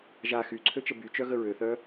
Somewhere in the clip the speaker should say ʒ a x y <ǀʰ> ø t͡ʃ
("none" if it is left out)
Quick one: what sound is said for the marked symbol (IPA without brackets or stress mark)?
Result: ǀʰ